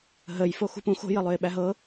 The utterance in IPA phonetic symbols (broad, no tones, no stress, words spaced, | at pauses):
ɦəj foxṳpũ xo̤ jəlˠøɪ̯ɓæɦɤ